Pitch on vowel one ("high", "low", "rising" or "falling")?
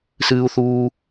high